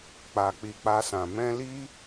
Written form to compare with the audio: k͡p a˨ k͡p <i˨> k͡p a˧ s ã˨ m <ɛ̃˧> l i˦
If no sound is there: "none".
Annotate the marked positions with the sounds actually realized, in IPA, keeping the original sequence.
i˨, ɛ̃˧

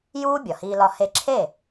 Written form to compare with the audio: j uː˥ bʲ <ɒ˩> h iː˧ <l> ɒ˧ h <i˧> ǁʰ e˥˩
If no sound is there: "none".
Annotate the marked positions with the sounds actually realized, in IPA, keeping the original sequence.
ɒ˩, l, e˧

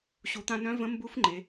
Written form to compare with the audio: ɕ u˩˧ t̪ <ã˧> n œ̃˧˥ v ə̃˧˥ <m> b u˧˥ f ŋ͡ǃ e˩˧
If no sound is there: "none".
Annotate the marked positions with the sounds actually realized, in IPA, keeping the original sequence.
ã˧, m

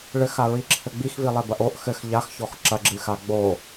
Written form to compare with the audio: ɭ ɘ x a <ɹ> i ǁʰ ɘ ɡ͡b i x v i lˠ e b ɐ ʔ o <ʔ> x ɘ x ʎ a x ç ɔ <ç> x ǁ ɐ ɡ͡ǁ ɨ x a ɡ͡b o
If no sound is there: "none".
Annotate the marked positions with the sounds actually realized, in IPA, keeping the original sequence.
ɹ, ʔ, none

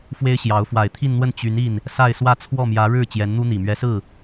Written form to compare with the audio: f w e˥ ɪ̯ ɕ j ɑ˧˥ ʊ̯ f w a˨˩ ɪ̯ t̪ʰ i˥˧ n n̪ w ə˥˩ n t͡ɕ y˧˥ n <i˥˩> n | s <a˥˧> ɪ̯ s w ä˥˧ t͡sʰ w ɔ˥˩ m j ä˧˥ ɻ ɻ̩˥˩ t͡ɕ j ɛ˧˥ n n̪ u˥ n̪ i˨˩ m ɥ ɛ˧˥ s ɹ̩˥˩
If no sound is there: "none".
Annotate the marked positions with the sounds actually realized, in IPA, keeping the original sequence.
i˥˩, a˥˧

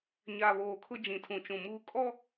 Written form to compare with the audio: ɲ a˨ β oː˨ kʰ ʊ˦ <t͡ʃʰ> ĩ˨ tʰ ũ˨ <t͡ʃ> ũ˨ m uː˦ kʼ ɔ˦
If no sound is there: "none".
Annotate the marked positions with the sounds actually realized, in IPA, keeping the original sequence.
d͡ʒ, t͡ʃ

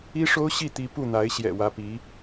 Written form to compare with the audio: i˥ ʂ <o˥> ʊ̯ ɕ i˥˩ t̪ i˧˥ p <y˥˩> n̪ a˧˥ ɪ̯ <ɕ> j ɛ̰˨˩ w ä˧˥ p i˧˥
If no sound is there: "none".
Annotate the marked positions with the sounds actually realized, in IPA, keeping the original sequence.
o˥, u˥˩, ɕ

